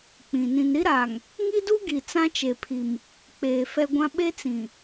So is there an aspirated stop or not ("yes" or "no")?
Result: yes